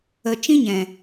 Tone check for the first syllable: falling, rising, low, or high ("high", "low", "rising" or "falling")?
low